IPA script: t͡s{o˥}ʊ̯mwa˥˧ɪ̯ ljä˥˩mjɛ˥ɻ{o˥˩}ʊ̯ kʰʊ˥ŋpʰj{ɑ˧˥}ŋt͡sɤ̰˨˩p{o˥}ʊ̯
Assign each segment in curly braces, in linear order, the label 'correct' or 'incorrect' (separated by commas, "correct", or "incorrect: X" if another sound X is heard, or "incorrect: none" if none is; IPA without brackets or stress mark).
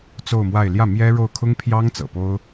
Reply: incorrect: o˥˧, correct, incorrect: ɑ˥, correct